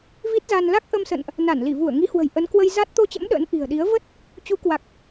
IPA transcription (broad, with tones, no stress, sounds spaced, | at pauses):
v i˦˥ t̚ z a˧ n l a˦˥ k̚ ʔ ə˧ m s ə̰˧˨ n ʔ | n a˧˩ n l i˧˩ v u˧˩ ə̯ ŋ i˨˦ h w ə̤˨˩ j ʔ ə˨˦ n k w ə˧ j z a˦˥ t̚ t̪ o˧ t͡ɕ ə̰˧˥ m ɗ ə̰ː˧˥ n ʔ i̤˨˩ ə̯ ɗ i˨˦ ə̯ v ə˦˥ t̚ | t͡ɕ u˨˦ k w a˨˩ k̚